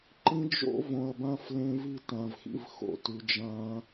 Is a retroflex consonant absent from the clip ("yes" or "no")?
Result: yes